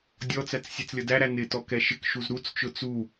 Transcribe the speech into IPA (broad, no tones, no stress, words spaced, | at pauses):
dʲɔt͡sæt͡s sʲɛt͡slʲʌdæɾæ nɪtɔ kɛʃɪkʃuz ɾut͡st͡ʃʊ t͡su